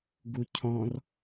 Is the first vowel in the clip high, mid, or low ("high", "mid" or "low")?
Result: high